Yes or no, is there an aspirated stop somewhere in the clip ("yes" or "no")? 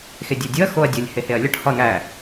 no